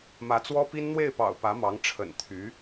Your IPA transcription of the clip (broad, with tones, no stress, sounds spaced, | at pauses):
m ä˧˥ t͡s w ɔ˥ p i˥ n n̪ w e˥˩ ɪ̯ p ɑ̰˨˩ ʊ̯ p ä˧˥ m ɑ˧˥ ŋ ʈ͡ʂʰ ə̰˨˩ n t̪ʰ y˧˥